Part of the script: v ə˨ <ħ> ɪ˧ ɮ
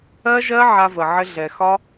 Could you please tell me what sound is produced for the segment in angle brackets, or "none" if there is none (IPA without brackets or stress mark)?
ʕ